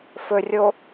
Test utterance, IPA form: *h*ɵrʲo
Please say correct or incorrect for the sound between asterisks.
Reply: incorrect